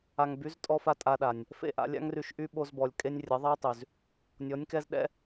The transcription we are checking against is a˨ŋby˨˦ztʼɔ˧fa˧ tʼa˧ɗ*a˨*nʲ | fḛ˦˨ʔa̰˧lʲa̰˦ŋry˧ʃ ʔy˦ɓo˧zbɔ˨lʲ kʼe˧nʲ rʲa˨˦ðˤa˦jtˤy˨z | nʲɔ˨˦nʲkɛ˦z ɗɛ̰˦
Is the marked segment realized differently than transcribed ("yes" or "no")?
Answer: no